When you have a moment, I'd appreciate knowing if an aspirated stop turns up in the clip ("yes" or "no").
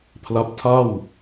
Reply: yes